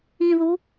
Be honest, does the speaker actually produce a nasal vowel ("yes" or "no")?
yes